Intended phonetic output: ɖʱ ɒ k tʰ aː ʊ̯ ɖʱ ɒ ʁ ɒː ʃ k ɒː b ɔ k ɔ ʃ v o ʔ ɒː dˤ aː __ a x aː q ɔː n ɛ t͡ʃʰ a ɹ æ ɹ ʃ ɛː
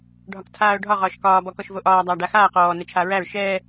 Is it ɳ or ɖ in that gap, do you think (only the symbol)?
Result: ɖ